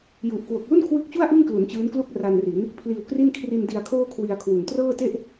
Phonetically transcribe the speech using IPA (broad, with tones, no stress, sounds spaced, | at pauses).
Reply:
j u˨˩ ʔ k w o˨˩ k̚ l u˥˩ n kʰ w ɯ˦˥ k̚ t͡ɕ u˥˩ a̯ ʔ ɯ˥˩ ŋ k l u˩˦ n t͡ɕ ɯː˦˥ n k l u˥˩ k̚ r a˧ n r i˩˦ n | pʰ l iː˧ w k r i˥˩ n kʰ r i˧ n d i˧ a̯ kʰ oː˥˩ kʰ w i˧ a̯ kʰ w u˨˩ n t r ɤː˥˩ t e˥˩ ʔ